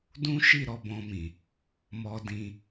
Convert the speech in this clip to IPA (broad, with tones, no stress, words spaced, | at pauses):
dũ˦ʃi˦˨ ɾɔ˧bɔ̃˧mĩ˨ | mɔ˧dĩ˧